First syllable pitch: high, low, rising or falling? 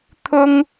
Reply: high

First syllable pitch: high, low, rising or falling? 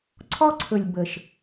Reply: high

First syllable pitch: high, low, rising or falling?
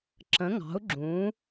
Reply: rising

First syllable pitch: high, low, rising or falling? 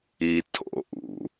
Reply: low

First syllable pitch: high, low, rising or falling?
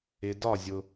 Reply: low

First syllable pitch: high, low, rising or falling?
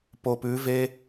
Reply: low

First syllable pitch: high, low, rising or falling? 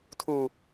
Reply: low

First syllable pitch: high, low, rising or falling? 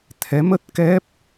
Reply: rising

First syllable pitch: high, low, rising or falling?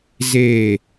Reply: low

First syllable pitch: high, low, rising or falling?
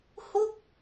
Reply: falling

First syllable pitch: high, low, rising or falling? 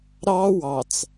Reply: high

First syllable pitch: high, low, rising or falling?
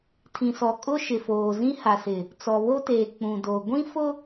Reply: low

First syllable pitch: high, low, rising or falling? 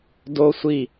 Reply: high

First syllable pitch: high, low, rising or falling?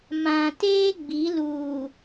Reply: low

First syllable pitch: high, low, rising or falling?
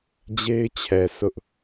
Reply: high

